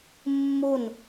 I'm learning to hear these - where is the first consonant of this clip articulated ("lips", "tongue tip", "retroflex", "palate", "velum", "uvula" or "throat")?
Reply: lips